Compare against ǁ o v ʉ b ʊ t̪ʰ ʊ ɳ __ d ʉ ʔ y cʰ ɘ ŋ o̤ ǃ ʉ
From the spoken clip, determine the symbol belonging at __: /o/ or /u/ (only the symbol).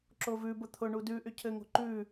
u